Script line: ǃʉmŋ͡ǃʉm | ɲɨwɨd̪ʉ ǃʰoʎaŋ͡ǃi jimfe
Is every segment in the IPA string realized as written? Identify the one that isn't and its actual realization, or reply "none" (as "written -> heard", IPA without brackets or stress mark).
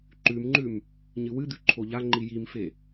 none